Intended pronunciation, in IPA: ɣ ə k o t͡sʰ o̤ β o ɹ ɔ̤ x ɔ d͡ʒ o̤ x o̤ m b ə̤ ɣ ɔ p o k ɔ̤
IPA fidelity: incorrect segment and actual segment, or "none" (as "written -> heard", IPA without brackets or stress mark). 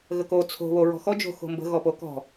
none